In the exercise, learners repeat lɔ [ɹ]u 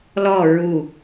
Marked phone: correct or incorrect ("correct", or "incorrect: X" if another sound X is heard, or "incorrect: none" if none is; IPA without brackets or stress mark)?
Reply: correct